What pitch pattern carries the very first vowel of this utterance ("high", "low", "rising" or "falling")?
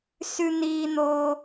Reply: high